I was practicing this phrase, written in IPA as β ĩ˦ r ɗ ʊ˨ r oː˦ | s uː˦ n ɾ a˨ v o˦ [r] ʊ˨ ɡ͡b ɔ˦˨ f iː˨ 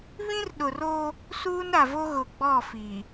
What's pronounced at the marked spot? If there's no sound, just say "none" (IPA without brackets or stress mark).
ɣ